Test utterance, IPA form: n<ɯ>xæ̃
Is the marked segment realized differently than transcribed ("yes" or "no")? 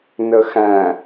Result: yes